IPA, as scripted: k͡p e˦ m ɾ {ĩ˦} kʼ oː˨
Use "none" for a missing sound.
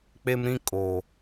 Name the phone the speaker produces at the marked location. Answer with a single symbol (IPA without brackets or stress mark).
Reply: ĩ˦